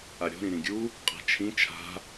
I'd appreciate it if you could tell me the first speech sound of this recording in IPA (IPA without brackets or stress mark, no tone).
ʔ